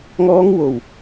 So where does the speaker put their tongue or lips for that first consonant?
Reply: velum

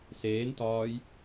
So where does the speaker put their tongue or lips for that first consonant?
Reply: tongue tip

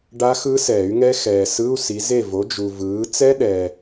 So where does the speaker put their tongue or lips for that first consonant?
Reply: retroflex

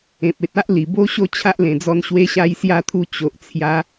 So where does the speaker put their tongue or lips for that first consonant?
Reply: lips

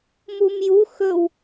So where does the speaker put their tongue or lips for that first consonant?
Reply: lips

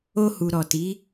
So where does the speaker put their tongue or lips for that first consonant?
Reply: throat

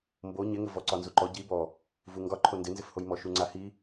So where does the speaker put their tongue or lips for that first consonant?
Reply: lips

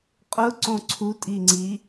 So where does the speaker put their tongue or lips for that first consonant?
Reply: uvula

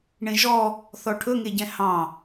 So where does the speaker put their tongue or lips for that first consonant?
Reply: retroflex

